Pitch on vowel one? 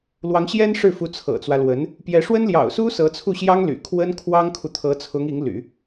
rising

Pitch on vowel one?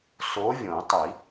rising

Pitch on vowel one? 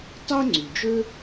high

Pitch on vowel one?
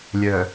low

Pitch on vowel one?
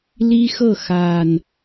high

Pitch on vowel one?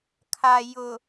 low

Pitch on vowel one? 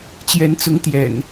rising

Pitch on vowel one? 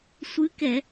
rising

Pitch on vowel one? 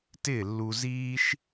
falling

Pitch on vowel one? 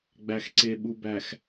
low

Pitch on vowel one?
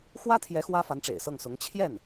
high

